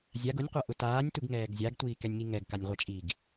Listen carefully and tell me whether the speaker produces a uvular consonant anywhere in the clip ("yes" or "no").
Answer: yes